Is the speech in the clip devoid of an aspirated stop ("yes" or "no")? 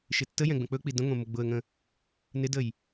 yes